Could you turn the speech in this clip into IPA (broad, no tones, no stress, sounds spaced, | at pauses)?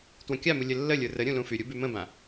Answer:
t w ə̃ kʲ a m u lʲ ə lː ə lʲ ə˞ r ə ɾʲ ũ l ũ f y ɾʲ u b y m ə̃ b ã